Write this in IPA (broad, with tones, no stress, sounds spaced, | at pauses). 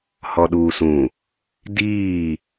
h ɔ˨ ɗ uː˨ s ũ˨ | d iː˦˨